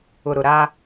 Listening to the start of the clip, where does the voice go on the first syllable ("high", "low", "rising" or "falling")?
low